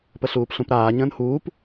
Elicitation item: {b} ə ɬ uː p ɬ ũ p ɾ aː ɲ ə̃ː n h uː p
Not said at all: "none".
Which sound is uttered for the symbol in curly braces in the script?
p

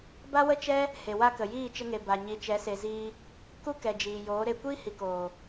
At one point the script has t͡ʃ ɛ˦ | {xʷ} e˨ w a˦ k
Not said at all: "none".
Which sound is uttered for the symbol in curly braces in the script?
h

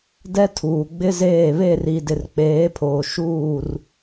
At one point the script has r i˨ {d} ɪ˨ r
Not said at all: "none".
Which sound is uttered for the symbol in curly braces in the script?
d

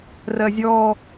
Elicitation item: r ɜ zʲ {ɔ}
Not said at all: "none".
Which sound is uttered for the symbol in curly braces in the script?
ɔ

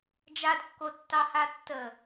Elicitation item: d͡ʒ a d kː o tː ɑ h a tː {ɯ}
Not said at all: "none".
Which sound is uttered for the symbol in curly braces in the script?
ə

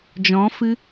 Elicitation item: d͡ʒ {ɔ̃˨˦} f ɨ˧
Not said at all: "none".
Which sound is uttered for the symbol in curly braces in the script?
ɔ̃˨˦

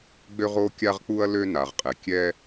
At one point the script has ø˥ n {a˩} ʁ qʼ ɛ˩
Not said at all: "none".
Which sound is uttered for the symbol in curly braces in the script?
a˩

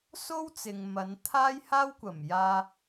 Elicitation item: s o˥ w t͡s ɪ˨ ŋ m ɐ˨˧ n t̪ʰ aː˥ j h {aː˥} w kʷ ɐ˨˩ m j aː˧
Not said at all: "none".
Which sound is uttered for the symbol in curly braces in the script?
aː˥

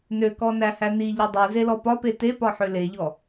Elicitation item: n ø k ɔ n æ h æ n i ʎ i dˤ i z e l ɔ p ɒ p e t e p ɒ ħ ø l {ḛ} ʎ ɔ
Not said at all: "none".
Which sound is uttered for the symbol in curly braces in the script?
e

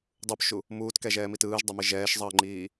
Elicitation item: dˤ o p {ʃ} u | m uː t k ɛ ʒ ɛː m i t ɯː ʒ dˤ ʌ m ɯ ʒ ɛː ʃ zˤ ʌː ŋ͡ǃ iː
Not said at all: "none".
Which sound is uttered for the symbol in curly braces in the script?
ʃ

